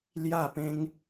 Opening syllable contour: falling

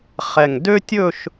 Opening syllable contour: low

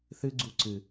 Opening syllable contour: high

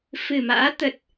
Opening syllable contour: low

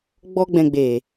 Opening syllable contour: high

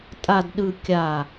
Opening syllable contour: low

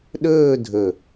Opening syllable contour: falling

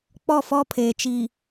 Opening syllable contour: falling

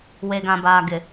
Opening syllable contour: low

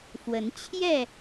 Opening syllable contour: rising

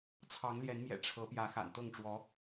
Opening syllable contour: rising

